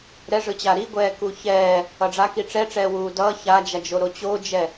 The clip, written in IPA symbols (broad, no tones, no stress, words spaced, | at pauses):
ɾɛʐɯt͡ɕa ɾiɡʷɛːku çɛː | ʌɖ͡ʐaki ʈ͡ʂɛʈ͡ʂɛːwuː dʌː çad͡ʒad͡ʒo ɾot͡ɕod͡ʒɛ